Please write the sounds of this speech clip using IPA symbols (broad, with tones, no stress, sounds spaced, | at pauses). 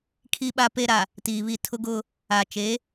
kʰ i˨ ɓ a˨ p e˨ ɾ a˨ | t iː˨ β i˦˨ tʰ ʊ˦ ɡ ʊ˦ | a˨ t͡ʃ e˨˦